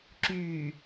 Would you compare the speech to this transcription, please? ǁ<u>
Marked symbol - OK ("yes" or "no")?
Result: no